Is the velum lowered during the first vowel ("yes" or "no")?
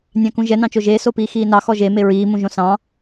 yes